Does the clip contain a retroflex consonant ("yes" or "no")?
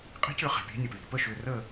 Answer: no